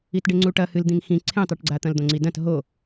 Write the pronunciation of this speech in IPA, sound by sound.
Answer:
i t ɖ e ŋ͡ǀ u ʈ ɐ h ɨ l d̪ ĩ ŋ x ĩ ǀʰ ẽ tˤ ʉ ʈ ɡ͡ǀ a t̪ ɐ̃ l d̪ õ ŋ͡ǀ i d ɐ̃ t ɦ o

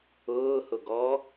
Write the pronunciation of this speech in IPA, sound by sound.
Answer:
ʊː h ʊ ɡ ɔ

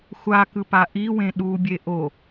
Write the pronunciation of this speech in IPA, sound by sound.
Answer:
xʷ a k ɯ p a ʔ i w ẽ ɗ u bʲ e ʔ o

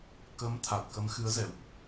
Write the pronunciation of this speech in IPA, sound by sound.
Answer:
k ə˨˦ m t̪ʰ a˨˩ t̚ k ə˨˦ m x ɨ˨˦ ə̯ z ɛ̰˧˨ w ʔ

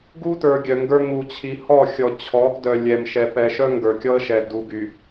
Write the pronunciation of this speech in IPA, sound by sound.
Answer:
ɡ u˦ t ə˞˨ ɡʲ œ˨ ŋ ɡ ə˞˦ ŋ u˨ t͡ɕʰ i˨ h ɔ˦˨ xʲ ɔ˨ t͡ɕʰ ɔ˨˦ ɡ d œ˨ lʲ ɛ˨ m ʃ ɛ˨ p ɛ˨ ʃ œ˦ ŋ ɡ ə˞˨ kʲ ɔ˦ ə̯ ʃ ɛ˨ d u˨ ɡ y˨

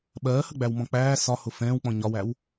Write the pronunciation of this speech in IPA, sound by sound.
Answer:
ɓ ɜː h ə ɡ͡b æ w m ɔ̃ k͡p æː s ɒ h ʊ f ɛ̃ː w k͡p ɔ̃ ɲ ɒ w æ w

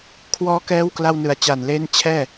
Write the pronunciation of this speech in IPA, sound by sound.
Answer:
kʰ w ɔː˦˥ k ɛː˦˥ w k l a˧ w n ɯ˨˩ a̯ t͡ɕ a˨˩ n l e˦˥ n t͡ɕʰ ɛː˥˩

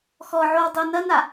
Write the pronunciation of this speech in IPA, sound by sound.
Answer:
x ɔ ʕ o w dˤ o n ɐ n a

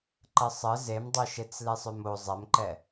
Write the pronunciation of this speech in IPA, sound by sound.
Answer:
ǃ ə sˤ ə z e m dˤ o ʃ e t͡s l e sˤ ø m o zˤ ɛ m ǃ ɛ

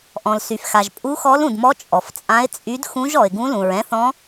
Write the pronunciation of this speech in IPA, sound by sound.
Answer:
ʔ ɔ̃˩ l s y˩ f x a˩ ʒ pʼ u˧˥ x ɔ˧˥ l ũ˩ d m ɔ˧˥ t͡ʃʼ ɔ˩ f t͡sʼ ã˧˥ ɪ̯ t͡sʼ y˧˥ d x ũ˧˥ ʒ ɔ˩ ɪ̯ ɡ ũ˧˥ l ũ˩ ɹ ɛ̃˧˥ θ ɔ̃˧˥

